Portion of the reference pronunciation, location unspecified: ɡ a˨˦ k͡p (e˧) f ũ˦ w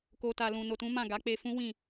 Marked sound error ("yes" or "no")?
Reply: no